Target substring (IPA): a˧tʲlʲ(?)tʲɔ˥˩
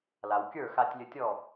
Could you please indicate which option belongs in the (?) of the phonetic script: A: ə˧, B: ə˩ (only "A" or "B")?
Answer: A